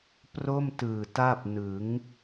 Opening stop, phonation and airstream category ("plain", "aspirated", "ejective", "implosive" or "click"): plain